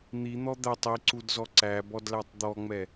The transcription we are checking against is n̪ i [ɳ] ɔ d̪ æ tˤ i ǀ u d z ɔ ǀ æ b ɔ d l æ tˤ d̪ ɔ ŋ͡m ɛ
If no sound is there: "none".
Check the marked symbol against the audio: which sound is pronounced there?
n̪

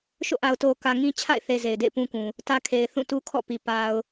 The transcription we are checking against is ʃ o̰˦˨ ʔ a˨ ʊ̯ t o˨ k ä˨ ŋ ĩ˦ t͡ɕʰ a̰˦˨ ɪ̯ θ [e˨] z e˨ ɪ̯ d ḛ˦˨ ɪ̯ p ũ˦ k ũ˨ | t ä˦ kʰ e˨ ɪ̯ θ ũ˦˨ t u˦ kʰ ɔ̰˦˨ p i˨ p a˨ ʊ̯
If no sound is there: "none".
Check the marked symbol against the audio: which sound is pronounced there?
e˨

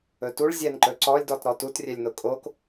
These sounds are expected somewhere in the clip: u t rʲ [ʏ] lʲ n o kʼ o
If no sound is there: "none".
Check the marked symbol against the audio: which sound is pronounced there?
ɛ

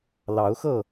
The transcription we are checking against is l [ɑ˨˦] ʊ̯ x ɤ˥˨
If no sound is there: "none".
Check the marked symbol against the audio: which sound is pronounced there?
ɑ˨˦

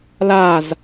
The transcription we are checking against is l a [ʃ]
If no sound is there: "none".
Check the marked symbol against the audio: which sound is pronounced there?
z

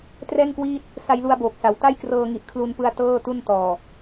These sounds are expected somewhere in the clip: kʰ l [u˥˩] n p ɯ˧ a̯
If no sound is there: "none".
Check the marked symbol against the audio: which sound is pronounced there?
u˧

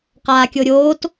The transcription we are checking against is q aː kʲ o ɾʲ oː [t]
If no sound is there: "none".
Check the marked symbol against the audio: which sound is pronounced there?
t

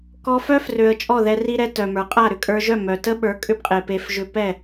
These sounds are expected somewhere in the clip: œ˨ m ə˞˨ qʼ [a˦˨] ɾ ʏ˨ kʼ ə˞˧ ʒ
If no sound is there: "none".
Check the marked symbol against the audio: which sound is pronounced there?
a˦˨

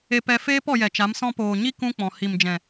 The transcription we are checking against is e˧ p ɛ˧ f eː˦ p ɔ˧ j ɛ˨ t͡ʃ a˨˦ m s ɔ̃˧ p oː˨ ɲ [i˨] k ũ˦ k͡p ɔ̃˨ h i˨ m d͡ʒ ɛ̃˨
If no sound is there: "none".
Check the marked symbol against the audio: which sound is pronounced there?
i˦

